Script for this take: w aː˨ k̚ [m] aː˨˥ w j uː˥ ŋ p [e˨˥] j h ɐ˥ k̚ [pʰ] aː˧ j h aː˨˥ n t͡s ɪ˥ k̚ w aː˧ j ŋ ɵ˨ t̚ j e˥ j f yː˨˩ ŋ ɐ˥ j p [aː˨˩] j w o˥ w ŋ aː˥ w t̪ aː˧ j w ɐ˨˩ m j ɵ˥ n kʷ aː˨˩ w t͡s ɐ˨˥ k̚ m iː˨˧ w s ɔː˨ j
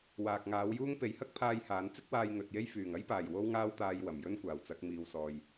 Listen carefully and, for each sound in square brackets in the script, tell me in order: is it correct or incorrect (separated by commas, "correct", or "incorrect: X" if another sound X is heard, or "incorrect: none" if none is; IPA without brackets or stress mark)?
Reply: incorrect: ŋ, correct, correct, correct